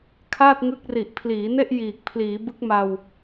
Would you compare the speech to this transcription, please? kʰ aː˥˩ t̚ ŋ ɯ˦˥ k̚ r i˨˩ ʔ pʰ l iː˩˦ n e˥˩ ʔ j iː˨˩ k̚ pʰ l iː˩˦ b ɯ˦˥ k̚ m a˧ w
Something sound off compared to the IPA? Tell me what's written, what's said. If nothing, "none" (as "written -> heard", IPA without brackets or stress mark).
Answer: none